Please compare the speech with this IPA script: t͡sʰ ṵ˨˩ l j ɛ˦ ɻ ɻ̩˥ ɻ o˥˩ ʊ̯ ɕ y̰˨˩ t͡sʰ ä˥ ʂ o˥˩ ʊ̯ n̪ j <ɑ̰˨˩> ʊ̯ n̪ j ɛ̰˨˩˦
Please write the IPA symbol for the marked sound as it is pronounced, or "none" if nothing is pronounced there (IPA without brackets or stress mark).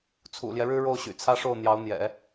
ɑ˧˥